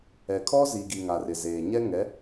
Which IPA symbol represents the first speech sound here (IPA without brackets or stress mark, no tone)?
ɛ